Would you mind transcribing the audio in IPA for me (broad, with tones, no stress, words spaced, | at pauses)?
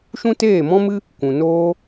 ʃũ˦teː˦˨mɔ̃˦mɨ˦ | kʷũ˨ noː˦